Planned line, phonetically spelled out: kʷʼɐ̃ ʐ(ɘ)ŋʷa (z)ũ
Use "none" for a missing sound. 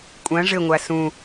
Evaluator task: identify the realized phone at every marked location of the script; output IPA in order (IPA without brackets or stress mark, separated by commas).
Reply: ɘ, s